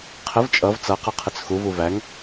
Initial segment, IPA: qʰ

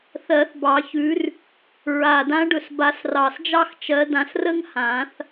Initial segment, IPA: θ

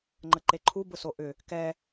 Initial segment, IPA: ŋ͡ǃ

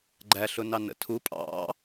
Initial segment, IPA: ɡ͡ǃ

